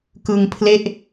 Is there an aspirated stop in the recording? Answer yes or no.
yes